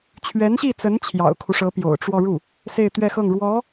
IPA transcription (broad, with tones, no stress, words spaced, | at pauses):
t͡ɕʰɥɛ˧˥nɕi˥˩t͡sə˧˥n t͡ɕʰjɑ̰˨˩ʊ̯kʰu˦ʂɤ˧˥ pjo̰˨˩ʊ̯ʈ͡ʂwɔ˥˧ ɻu˥˩ | se˥˧ɪ̯t̪ɥɛ˥˧xɤ˥˩ŋ ɻwɔ˧˥